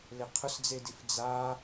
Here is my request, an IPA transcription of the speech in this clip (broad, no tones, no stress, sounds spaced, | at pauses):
l ɪ qʰ ʊ s d͡z e d i f d͡z a